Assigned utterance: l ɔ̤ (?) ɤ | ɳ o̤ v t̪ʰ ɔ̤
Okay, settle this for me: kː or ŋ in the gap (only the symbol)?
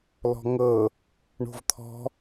ŋ